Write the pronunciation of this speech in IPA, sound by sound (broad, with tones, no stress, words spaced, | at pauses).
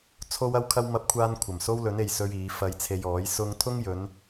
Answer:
t͡sʰo˥wɐ˥wkʰɐ˥w mɐ˥p̚kʷʰaː˥nkʷʰɐ˨˩m so˥wlɵ˨˥ne˨j sɵ˥ɥiː˨˥ fɐ˧jt͡sʰe˧jɔː˨˥j sʊ˥ŋ t̪ʰʊ˥ŋjɵ˨˧n